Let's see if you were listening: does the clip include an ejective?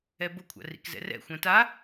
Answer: no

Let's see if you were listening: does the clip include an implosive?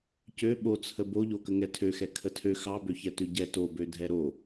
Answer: yes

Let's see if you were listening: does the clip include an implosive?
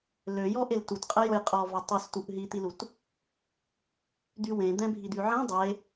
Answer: no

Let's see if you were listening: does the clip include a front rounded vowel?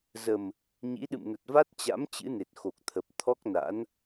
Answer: no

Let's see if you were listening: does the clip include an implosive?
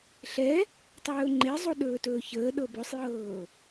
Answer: yes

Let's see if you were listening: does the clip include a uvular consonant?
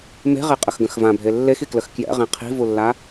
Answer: yes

